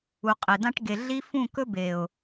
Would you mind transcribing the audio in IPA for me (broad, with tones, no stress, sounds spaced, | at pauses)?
u˨ qʼ e˨ d ã˦ ʈ ɡ e˨ ɮ i˦ f ũ˦˨ k ɵ˦ b e˨ ʊ̯